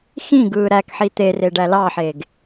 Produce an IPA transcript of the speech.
x ĩ ɡ ɯː ɾ æ k ħ i t̪ e r e ɖ æ l ɑ ħ eː ɡ

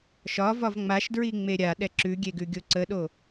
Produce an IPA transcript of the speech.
ʃ ɒ v ɒ v ŋ͡m a ʃ d ɹ i ŋ͡m e ɾʲ a ɗ ɛ ǁ ʉ ɡʲ e ɡ ʉ ɡʲ o ǀ ə ɗ o

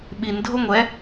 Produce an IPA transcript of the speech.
ɓ i n dʱ o ŋʷ ɛ

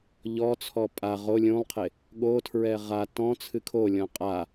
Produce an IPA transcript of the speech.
ʎ ɔ t͡sʰ ɔ pʼ a ʁ o lʲ ũ lˠ qʰ e | ɠ o tʰ ɹ ɛ ʁ a t ɔ̃ t͡sʰ ɨ kʰ o lʲ ɔ̃ qʼ a

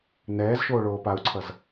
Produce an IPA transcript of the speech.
n ɛː z ʃ oː ɭ oː p a u̯ ǀʰ ʌ z

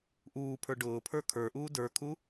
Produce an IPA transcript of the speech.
ʔ uː pʰ ə˞ ɖ ʊː pʰ ə˞ kʰ ə˞ ʔ uː d ə˞ kʰ u

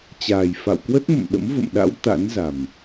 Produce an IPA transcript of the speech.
t͡ɕ aː˨˩ j f a̰˧˨ w k w ə˦˥ t̚ m ə̰˧˨ m ɗ ə̰˧˥ m v ə̰˧˨ m ɗ a̰˧˥ w t̪ a̰˧˥ n z a˨˩ m

